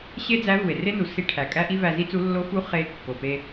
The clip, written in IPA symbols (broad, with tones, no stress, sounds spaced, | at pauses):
ɕ e˥ d͡z æ˧˥ v u˩ e̯ r e˥ n u˩ s i˧˥ ʈʰ æ˩ kʼ æ˥ ʔ i˥ v æ˧ z i˥ t͡s u˧˥ lː o˧˥ f u˧˥ χ e˧˥ kː o˩ p e˧